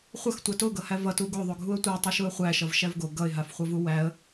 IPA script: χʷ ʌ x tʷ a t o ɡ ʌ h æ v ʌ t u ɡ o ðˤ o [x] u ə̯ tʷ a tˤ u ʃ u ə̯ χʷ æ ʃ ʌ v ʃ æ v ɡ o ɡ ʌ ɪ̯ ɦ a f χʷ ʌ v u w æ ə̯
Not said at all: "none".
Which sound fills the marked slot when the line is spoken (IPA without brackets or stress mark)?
ɡʱ